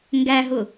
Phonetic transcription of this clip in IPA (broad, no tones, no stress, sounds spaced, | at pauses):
ŋ ɡ æ ɦ ʊ